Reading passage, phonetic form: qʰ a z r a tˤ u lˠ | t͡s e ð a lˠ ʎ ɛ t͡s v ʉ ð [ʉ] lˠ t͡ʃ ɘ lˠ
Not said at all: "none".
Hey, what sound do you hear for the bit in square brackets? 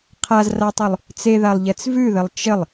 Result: ɘ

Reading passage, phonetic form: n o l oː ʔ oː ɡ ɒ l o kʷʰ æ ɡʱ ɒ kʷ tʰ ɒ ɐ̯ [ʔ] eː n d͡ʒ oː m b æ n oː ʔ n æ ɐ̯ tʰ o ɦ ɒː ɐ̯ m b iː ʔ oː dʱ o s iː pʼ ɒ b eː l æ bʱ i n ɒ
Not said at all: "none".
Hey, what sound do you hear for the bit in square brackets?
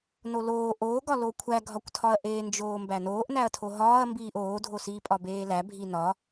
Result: ʔ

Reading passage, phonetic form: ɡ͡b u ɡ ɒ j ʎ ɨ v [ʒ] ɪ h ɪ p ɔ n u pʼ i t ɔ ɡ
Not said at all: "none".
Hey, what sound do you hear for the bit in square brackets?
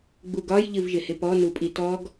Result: ʒ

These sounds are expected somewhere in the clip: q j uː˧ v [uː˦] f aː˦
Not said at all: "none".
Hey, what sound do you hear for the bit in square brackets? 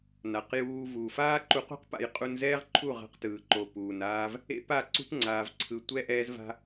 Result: uː˨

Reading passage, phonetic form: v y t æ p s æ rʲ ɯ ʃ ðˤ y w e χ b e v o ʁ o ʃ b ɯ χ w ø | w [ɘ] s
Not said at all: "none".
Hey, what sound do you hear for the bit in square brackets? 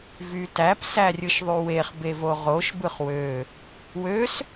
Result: ø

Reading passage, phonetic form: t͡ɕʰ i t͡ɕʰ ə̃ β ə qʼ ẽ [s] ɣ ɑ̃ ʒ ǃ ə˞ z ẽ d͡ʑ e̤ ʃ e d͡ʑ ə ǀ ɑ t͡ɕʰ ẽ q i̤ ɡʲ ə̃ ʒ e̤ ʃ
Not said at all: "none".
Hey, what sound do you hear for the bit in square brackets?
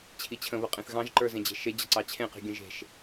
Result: θ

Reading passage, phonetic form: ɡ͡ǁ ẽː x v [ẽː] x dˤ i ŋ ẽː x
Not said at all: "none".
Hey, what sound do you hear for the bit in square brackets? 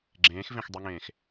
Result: ẽ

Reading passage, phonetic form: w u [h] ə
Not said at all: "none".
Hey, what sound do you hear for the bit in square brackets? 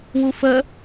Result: f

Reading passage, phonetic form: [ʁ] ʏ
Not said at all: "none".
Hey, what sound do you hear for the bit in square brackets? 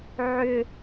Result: ʕ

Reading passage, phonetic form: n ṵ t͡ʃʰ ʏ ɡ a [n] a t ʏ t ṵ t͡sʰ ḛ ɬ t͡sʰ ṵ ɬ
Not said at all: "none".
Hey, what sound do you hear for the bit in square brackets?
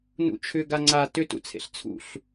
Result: ŋ͡ǀ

